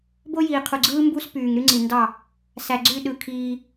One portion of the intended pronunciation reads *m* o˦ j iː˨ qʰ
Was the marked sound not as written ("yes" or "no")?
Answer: yes